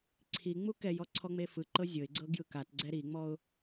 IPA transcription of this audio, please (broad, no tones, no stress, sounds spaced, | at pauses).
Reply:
ǀʰ i ŋ͡m u k ɛ j ɔ ǀʰ ɔ ŋ͡m e f ɯ ǃ ɤ zʲ ɤ ɪ̯ ɡ͡ǀ ɤ ɡ j ɯ k a t ɡ͡ǀ ɛ ɾ i ŋ͡m ɔ ʊ̯